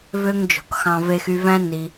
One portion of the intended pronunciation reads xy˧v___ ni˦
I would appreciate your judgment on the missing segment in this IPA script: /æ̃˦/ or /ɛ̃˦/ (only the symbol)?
æ̃˦